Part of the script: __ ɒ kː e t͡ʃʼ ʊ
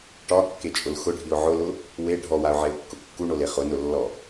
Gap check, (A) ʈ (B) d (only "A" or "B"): A